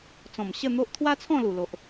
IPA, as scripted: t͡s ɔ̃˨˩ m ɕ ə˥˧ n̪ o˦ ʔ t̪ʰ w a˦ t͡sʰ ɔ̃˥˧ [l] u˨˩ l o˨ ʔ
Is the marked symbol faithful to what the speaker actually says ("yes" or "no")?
yes